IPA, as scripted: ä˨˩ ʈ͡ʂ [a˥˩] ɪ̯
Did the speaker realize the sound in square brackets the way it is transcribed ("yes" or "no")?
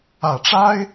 no